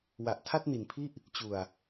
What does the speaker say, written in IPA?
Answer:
w a˨˩ ʔ tʰ a˥˩ t̚ n i˨˩ n pʰ i˥˩ ʔ | t͡ɕ u˨˩ a̯

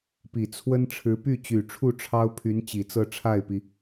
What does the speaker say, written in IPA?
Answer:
p i˨˩ t͡sʰ w ə˥ n ʈ͡ʂʰ ɻ̩˧˥ p y˥˩ t͡ɕ y˨˩ ʈ͡ʂʰ u˥˩ ʈ͡ʂʰ ɑ˥ ʊ̯ pʰ y˧˥ n t͡ɕ i˨˩ t͡s ɤ˥˧ ʈ͡ʂʰ a˥˩ ɪ̯ p i˩

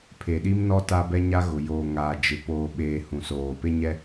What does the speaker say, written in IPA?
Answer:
pʰ e˨ ɗ i˦ m n ɔ˦ t a˦ b ɛ˦ ɲ a˦ ɣ ʊ˨ j oː˨ ŋ aː˨ d͡ʒ ɪ˨ p oː˨ ɓ eː˨ h ũ˨ s oː˨ p e˦ ɲ ɛ˦

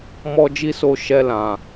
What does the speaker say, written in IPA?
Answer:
m ɔ˦ d͡ʒ i˦ s o˦˨ ʃ ɛ˧ l ã˨

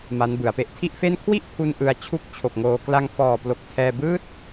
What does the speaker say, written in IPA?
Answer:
m a˦˥ n b ɯ˩˦ a̯ p e˥˩ ʔ tʰ i˥˩ ʔ f e˥˩ n kʰ w i˥˩ ʔ pʰ u˧ n ʔ ɯ˧ a̯ t͡ɕʰ u˥˩ k̚ t͡ɕʰ o˨˩ k̚ ŋ oː˧ k l a˧ ŋ f ɔː˨˩ p l o˨˩ k̚ tʰ ɛː˥˩ b ɯː˦˥ t̚

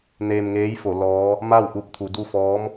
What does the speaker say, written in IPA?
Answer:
n eː˧ m ŋ eː˧˥ j f o˩˧ l ɔː˧˥ | m a˥˨ w ʔ u˧ p̚ t̪ʰ u˩˧ d u˥˨ f ɔː˧˥ m

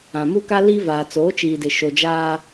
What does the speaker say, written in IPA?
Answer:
ã˨ m u˦ k a˦ l i˦ v aː˨ t͡s oː˨˦ t͡ʃ iː˨ d ɪ˨ ʃ o˨ d͡ʒ aː˦

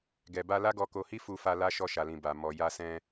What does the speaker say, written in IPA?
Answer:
ɡ ɛ˨ b a˧ l a˦ ɡ ɔ˧ k o˧ h i˦ f u˧ f a˧ l a˧ ʃ ɔ˧ ʃ a˨ l ĩ˨ b a˨ m ɔ˨ j a˧ s ɛ̃˧

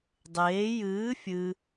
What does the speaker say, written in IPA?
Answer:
dˤ eː j ɨː fʲ ɨ

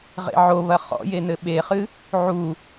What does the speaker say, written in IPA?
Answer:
ʁ ḛ ʕ o β ɐ χ ɔ̰ j e n ɘ ɓ e χ ɨ | ʕ u

